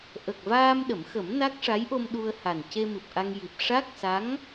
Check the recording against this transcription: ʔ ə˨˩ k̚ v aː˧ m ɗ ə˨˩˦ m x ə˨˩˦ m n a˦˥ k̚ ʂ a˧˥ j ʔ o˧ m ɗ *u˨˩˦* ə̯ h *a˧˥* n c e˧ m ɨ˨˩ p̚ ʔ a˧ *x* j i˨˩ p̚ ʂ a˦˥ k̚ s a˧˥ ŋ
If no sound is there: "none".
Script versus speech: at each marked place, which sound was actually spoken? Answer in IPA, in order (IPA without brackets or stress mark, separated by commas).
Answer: u˧, a˨˩, ŋ